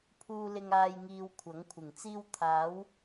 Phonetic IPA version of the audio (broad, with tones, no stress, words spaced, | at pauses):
pʰuː˧lɪ˧ŋaː˧j ŋiː˧wkʷʰɐ˨˥ŋkʷʰɪ˨˩ŋt͡siː˥w t̪ʰaː˨˧w